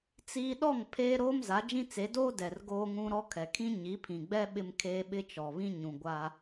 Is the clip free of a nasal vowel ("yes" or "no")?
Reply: no